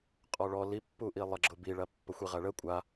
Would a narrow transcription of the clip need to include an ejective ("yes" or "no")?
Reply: yes